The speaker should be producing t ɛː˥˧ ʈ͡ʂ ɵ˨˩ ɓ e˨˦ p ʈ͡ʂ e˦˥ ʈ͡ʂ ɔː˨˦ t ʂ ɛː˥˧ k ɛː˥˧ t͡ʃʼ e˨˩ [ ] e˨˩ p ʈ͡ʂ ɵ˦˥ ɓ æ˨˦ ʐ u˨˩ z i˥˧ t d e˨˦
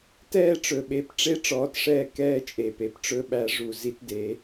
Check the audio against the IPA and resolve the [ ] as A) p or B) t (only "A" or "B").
A